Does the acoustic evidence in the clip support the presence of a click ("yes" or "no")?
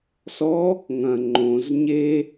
yes